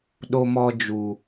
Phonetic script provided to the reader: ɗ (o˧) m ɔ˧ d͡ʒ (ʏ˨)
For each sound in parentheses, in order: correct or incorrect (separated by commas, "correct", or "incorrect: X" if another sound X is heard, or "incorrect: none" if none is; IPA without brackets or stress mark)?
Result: correct, incorrect: u˨